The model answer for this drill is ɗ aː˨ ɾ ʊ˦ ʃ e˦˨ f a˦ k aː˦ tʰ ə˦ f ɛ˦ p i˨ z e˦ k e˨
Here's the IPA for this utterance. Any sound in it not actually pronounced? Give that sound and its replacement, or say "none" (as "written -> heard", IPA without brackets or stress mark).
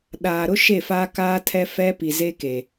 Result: ə˦ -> ɛ˦